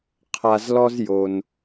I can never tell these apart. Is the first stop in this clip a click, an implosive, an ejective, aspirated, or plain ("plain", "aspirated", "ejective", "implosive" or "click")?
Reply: aspirated